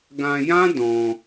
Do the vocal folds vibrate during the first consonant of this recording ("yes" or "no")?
yes